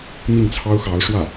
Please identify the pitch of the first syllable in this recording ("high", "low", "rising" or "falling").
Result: falling